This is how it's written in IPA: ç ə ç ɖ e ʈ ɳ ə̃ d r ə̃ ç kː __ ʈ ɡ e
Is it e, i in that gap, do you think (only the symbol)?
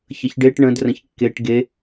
e